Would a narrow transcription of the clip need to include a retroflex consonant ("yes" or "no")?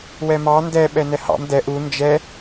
no